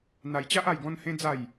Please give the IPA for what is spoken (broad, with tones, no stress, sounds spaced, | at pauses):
n̪ a˧ j t͡ɕ a˦ ʔ a˥˧ j ɡ ɔ̃˦ n h ẽ˦ d͡z a˥˧ j